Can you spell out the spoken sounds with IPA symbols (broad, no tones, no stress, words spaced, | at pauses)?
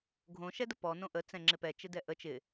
ɡʱõ ʃɛdəpɔ nõʔə t͡sɛ̃ŋ͡ǁɪpɛ t͡ʃɪdɛʔə t͡ʃɪ